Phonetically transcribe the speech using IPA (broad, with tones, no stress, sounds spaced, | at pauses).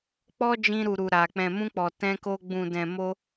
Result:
k͡p ɔ˦ d͡ʒ ĩ˧ ɾ u˨ ɾ u˨ ɾ a˨ k͡p ɛ̃˨ m ũ˧ k͡p ɔ˨ t ɛ̃˧ k o˧ ɡ͡b ũ˨ d ɛ̃˨ m o˧